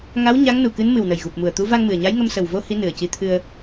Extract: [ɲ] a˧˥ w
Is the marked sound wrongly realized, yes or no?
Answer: yes